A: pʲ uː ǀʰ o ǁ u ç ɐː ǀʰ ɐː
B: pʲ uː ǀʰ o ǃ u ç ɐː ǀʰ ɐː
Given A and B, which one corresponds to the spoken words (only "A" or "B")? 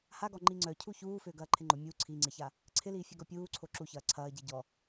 A